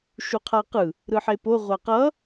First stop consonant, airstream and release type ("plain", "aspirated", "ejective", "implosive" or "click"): aspirated